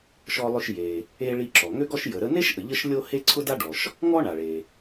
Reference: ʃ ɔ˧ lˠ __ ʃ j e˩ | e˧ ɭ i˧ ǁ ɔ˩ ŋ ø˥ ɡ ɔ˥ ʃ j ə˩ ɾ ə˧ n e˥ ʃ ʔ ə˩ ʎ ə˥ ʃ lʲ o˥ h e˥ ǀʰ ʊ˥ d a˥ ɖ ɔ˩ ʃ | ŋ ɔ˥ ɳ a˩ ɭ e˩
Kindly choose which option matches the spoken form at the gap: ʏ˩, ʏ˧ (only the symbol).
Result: ʏ˧